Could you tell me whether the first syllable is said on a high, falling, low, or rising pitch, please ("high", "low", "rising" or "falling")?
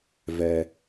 low